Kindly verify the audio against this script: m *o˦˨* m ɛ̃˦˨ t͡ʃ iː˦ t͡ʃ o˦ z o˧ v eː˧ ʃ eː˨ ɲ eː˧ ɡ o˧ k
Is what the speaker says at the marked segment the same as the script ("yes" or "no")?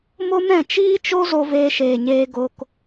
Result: no